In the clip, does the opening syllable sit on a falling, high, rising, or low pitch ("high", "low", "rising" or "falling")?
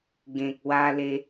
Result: low